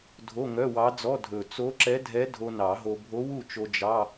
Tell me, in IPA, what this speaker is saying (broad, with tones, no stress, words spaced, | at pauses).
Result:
dʱo˧˥˧ŋœ˧˥˧wɑ˧˥d͡zɔ˧˥˧ dʱɵ˨˩ t͡so˧˥ǁɛ˧˥dʱɛ˧˥ dʱo˧nɑ˨˩˦ɦo˧ bʱo˧˥wu˥˨t͡ʃo˧ d͡ʒɑ˧˥˧